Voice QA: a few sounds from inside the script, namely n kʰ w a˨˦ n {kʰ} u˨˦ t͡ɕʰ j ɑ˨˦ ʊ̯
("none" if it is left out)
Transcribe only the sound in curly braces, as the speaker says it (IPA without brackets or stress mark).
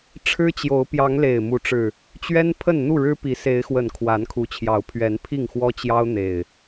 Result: kʰ